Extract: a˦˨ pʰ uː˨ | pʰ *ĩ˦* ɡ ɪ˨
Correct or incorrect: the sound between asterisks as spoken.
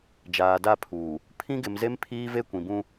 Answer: correct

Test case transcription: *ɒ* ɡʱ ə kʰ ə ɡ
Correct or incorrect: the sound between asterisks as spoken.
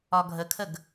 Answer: correct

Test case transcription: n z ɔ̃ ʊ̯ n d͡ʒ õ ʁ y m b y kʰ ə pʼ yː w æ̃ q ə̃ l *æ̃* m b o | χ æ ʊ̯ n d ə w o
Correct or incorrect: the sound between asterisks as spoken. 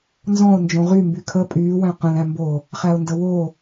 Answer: correct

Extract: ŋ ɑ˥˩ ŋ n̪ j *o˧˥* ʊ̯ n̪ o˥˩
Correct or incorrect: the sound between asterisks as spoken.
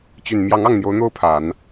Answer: correct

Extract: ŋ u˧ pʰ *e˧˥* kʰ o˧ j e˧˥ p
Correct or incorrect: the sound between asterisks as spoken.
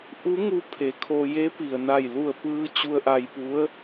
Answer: incorrect: e˩˧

